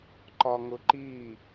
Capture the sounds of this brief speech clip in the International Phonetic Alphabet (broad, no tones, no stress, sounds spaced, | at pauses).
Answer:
ǃ ɒ ŋ ʊ ǃ i